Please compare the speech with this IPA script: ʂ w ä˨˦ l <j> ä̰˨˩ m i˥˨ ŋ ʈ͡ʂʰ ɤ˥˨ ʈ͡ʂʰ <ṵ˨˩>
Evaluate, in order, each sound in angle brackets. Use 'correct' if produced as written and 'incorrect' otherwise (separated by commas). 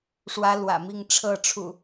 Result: incorrect, correct